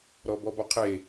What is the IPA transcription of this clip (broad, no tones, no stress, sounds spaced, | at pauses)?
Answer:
ɾ ɔ b ɔ b ɔ qʰ e